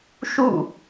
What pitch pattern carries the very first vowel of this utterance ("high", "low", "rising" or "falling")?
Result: falling